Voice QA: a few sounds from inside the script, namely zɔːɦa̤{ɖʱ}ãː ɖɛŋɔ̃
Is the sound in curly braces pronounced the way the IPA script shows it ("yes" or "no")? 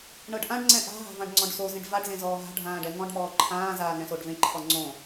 yes